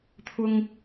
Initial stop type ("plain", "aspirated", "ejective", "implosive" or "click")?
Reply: aspirated